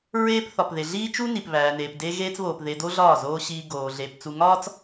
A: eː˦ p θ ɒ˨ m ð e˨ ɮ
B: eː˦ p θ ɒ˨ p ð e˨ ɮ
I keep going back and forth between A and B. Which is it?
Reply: B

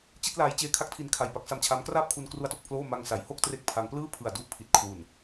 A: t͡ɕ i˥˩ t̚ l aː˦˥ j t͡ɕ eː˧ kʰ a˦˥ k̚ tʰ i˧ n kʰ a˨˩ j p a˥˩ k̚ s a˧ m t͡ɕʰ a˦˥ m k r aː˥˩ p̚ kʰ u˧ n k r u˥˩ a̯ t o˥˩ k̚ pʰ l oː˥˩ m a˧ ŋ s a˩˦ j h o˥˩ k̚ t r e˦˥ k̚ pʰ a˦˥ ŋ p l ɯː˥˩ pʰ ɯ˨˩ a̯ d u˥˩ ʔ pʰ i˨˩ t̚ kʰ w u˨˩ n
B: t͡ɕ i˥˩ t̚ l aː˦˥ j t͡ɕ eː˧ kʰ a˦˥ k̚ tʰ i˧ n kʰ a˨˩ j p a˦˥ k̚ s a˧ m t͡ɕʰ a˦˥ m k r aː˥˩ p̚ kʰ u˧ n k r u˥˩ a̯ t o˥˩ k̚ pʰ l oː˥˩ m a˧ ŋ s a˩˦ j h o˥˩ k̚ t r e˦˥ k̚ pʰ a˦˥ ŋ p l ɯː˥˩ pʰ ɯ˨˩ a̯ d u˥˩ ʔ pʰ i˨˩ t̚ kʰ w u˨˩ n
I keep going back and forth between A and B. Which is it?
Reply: B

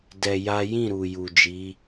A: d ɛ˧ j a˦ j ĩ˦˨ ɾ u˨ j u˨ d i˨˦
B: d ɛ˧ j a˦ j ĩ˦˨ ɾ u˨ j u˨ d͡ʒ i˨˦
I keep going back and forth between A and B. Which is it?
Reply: B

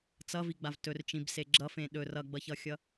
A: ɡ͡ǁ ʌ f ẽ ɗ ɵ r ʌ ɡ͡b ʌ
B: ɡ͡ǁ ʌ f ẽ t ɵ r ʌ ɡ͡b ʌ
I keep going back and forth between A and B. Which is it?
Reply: A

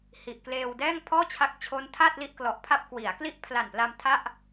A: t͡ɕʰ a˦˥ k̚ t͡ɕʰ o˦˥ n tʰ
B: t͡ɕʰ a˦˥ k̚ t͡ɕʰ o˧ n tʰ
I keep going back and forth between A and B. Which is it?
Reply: A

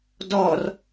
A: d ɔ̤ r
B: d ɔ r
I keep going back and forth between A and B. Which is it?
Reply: B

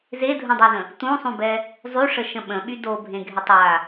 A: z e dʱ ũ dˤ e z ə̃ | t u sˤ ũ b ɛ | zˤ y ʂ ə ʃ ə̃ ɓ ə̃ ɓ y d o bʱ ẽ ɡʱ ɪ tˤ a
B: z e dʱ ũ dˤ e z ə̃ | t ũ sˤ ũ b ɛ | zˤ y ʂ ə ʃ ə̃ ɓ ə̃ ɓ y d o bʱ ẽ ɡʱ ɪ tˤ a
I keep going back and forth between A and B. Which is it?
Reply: B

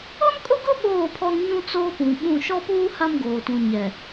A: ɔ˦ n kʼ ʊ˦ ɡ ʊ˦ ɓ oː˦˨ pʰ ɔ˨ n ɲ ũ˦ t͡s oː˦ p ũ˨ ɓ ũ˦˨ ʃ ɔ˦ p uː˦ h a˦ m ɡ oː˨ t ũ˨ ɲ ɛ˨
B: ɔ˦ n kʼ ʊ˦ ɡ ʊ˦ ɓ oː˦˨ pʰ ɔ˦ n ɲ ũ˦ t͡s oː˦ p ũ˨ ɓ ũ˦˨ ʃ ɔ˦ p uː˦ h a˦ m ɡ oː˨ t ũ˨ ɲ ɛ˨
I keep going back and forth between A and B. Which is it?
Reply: B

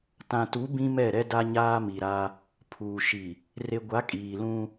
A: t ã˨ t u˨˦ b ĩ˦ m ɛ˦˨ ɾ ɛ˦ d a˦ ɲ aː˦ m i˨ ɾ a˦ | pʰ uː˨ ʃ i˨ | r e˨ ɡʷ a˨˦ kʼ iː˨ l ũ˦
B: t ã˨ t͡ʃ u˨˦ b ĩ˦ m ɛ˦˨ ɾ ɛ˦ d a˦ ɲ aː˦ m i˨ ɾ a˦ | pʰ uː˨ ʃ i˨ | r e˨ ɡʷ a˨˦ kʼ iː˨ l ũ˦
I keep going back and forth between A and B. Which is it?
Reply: A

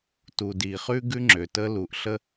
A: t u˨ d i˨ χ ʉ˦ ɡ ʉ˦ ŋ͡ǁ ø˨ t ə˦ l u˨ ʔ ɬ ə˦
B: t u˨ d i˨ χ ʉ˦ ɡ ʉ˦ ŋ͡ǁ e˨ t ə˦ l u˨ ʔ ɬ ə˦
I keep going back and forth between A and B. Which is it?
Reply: A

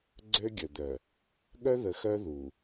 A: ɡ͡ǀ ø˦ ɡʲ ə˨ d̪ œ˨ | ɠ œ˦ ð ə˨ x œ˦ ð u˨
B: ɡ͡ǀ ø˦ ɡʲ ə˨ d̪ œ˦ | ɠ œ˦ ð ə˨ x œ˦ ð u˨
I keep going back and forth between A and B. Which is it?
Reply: A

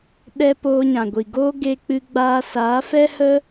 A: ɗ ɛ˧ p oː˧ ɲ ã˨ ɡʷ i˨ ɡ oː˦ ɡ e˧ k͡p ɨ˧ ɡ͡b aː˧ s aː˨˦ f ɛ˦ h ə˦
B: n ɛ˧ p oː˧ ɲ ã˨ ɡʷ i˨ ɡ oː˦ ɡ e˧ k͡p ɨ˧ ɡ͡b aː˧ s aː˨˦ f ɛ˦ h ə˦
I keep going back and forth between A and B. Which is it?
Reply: A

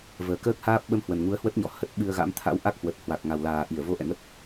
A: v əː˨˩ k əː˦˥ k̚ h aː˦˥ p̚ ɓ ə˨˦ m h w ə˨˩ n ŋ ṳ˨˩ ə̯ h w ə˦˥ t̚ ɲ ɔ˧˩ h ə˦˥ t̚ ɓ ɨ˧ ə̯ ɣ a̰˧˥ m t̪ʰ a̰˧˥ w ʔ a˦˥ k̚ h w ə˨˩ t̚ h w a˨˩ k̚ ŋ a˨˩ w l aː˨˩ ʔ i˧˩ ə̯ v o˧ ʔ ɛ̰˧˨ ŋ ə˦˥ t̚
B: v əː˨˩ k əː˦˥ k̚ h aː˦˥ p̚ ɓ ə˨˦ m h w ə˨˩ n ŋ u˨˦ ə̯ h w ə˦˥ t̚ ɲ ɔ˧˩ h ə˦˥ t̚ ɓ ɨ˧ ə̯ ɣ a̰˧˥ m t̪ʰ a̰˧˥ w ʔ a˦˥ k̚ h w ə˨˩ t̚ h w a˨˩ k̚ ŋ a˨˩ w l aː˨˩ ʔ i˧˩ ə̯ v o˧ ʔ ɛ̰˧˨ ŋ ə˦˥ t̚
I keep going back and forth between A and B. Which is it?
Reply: B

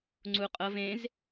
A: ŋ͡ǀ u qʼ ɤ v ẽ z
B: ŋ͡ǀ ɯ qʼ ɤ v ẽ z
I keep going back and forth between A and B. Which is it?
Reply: A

